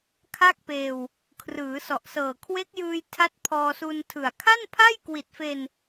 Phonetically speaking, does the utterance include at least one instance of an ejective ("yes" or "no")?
no